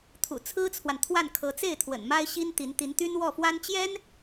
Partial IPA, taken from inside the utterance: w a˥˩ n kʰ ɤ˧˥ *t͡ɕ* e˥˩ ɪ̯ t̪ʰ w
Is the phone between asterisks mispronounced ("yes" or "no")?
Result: yes